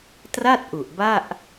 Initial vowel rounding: unrounded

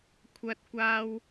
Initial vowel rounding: unrounded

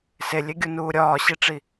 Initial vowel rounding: unrounded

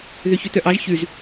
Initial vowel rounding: rounded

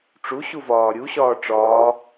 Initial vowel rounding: rounded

